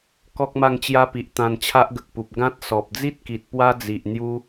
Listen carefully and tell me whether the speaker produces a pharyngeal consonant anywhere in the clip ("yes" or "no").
no